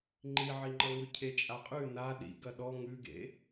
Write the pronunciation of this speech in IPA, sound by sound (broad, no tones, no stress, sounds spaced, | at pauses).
ŋ͡ǃ i ʕ i ŋ͡ǃ ʌ ŋ ʉ cʰ e t͡ʃʼ a qʼ ʉ n a ɗ ḭ ɡ ɐ ɗ ɔ ŋ ʉ ɡ ḛ